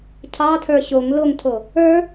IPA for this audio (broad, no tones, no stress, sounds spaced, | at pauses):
cʰ ɑ tʰ ə˞ ɕ o ŋ l o ŋ tʰ o | ə˞